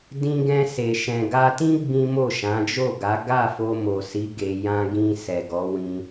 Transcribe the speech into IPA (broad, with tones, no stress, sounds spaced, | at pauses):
d ĩ˧ ɡ ɛ̃˧ s e˨ ʃ ɛ̃˨ ɡ a˧ t ĩ˦ ɡ͡b ĩ˦ m o˦˨ ʃ ã˨˦ d͡ʒ o˦˨ ɡ a˨˦ ɡ a˦˨ f o˧ m o˨ s i˨˦ ɡ e˧ j ã˧ ɡ ĩ˧ s ɛ˨ ɡ ɔ˨˦ w ĩ˧